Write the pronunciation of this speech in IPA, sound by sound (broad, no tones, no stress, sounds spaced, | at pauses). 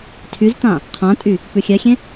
tʰ y z t̪ ã | qʰ ã tʼ y | p ʉ xʲ ɛ xʲ ẽ